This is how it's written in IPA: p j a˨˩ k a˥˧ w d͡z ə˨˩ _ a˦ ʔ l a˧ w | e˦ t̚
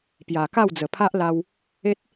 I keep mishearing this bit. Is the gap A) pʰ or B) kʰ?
A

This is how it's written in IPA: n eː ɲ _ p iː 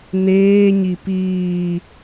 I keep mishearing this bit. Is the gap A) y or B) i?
B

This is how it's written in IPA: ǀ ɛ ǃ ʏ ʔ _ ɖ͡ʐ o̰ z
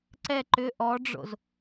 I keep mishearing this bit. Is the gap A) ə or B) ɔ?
B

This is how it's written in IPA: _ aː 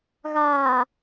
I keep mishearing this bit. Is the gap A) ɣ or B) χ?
A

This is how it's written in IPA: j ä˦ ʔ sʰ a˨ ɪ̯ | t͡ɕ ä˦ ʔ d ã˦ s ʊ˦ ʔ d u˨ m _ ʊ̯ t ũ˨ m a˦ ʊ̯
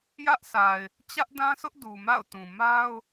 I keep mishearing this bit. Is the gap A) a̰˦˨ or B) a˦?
A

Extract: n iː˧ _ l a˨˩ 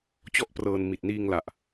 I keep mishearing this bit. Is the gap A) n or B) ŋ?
B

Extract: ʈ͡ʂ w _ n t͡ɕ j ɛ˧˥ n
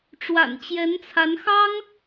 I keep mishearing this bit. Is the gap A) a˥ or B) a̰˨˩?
B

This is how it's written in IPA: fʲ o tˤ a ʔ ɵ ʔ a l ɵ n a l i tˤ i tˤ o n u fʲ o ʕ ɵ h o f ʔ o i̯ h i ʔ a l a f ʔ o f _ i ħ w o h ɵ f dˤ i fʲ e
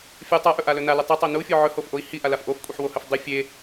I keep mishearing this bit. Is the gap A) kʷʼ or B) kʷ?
A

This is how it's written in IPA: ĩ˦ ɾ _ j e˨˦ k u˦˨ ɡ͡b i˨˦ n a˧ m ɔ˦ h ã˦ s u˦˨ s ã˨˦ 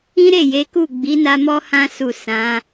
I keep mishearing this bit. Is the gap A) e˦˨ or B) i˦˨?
A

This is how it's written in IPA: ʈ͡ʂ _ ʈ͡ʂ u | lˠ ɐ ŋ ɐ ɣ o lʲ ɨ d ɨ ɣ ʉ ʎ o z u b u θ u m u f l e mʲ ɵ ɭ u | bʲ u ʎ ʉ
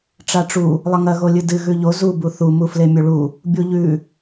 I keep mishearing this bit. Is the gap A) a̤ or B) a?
B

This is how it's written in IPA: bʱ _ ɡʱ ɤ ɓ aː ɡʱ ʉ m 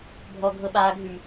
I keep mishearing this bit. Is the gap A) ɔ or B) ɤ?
A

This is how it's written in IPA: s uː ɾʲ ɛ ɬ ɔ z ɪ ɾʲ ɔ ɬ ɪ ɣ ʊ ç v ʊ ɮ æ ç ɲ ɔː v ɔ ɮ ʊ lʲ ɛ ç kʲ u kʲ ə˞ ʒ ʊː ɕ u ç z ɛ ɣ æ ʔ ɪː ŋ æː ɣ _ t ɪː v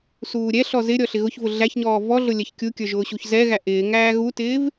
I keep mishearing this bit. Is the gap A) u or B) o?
A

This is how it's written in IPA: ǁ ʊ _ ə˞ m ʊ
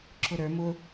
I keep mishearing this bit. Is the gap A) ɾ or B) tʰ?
A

